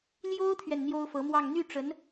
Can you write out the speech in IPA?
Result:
ljo˥ʊ̯t̪ʰɥɛ˨n n̪jo˥ʊ̯fɤ˧˥mwɑ˥˧ŋ n̪y˥˩ʈ͡ʂə˧˥n

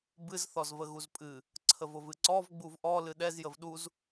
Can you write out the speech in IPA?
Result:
bɨz θɔzvəɣuzpʼɨ | ǀʰəvʊvɨǀɔv ɡ͡buvʔɔ lɨɗɛz jəvɗuz

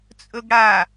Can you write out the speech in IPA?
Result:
t͡sʼɵɡɽa

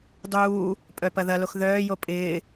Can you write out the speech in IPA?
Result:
dˤuː | pʼœpɐðɐlox ðœːjo pʼɪː

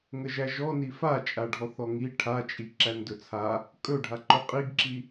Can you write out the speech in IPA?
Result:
ŋəʒæʒɔni fat͡ʃʼaɖʱɔθ ɔŋi ʈʰat͡ʃʼi ǁændɵt͡sʰa | kʼɵɖʱa ǃɵqʼiɡǁi

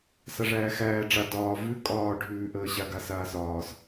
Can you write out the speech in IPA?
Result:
saʐæːxæː ɖ͡ʐa dɒː vʉ kʼɒː ɖʱʉːʔəːɕa ɡasaːsɒːs

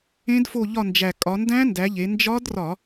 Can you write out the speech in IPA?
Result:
ẽ˦˥dfo˦˨ʎɒ˦˨nd͡ʒæ˨˩ kʼɒ˩˧ndæ̃˦˥ndæ˩˧ ʎe˩˧nd͡ʒɒ˦˥drɒ˧˩˧

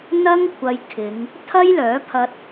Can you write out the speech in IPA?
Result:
n̪ɐ˥ŋkʷʰɐ˧jkʰɪ˨˧ŋ | t̪ʰɐ˥jlœː˨˥pʰɐ˧t̚

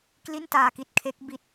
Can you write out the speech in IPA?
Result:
kli˥˩ntaː˧ki˦˥t̚kʰe˦˥k̚ bi˥˩t̚

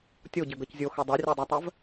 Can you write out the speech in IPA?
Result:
tʲoɟɘɡɤc zʲoxɘ dˤarʲadˤɜtˤɜv

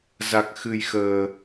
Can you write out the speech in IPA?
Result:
za˨˩k̚xɨ˨˩jxəː˨˩

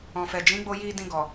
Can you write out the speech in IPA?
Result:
ɔ̃˨fɛ˨ d͡ʒĩ˨˦ɡ͡bo˧ji˧ dĩ˧ ɡɔ˨

